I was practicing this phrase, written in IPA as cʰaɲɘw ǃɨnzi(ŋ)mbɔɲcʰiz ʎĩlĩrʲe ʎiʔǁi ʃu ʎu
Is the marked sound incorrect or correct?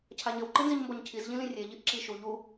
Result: incorrect